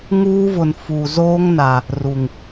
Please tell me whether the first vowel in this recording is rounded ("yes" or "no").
yes